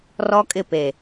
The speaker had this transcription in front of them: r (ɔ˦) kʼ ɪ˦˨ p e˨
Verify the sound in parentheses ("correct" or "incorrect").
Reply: correct